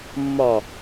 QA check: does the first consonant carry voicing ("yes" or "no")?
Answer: yes